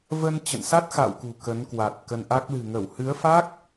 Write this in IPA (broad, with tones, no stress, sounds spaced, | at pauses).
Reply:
v ə˧ n t͡ɕ ə̰˧˨ n s a˦˥ t̚ x a̰˧˨ w k ṳ˨˩ k ə˨˦ n k w a˨˩ t̚ k ə˧ n ʔ a˦˥ k̚ l ɨ̤˨˩ ŋ ə˧˩ w h ɨ˨˦ ə̯ f a˦˥ k̚